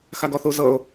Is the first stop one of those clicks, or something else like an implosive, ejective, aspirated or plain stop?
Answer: plain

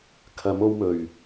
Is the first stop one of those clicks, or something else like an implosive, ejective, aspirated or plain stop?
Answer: aspirated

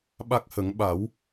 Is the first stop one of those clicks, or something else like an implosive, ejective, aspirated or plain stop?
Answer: implosive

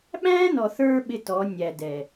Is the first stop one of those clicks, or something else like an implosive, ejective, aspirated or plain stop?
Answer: implosive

